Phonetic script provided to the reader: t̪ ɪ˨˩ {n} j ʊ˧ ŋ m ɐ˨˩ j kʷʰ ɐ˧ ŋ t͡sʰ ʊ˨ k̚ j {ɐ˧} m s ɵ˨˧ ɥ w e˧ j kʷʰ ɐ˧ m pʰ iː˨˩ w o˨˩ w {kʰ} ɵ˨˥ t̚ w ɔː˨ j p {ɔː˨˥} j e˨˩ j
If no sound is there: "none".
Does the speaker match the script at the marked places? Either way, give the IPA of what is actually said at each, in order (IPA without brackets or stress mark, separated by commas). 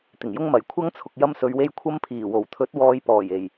ŋ, ɐ˧, t̪ʰ, ɔː˨˩